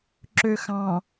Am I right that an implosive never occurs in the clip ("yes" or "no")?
yes